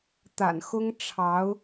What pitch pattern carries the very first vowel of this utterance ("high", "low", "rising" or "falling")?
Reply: low